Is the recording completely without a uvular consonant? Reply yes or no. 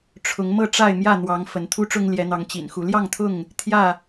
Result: yes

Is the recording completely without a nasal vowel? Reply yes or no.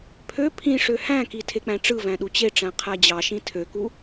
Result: no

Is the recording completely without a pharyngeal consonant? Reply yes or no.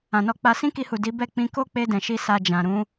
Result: yes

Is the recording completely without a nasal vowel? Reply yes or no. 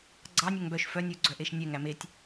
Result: yes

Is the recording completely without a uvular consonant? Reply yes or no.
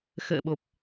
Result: yes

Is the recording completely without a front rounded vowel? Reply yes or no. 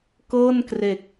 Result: yes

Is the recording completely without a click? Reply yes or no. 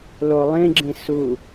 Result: no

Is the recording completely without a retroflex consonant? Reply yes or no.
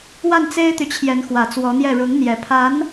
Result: no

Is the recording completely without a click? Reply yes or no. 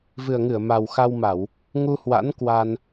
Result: yes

